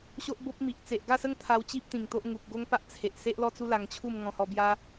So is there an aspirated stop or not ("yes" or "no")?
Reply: yes